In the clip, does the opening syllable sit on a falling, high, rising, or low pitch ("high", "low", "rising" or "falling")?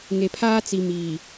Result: low